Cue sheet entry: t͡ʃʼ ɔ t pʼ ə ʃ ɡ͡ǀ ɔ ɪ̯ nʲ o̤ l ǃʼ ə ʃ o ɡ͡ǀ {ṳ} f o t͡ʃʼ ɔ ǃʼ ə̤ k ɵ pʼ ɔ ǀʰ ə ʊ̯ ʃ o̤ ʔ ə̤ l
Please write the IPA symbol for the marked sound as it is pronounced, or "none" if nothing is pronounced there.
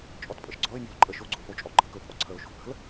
o̤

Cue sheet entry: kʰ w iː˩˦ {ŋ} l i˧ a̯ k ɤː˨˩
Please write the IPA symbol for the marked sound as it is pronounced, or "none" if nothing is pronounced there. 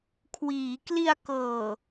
k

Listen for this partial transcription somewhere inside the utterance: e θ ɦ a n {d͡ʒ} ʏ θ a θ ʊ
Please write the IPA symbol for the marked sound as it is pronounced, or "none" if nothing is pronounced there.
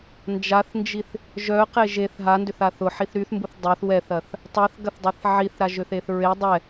d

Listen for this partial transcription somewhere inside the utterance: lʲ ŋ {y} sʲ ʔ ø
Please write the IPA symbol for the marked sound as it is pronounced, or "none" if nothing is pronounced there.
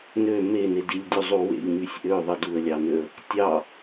y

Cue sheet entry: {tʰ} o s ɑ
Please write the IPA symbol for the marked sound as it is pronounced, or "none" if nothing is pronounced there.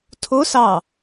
tʰ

